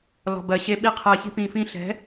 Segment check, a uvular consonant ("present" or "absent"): present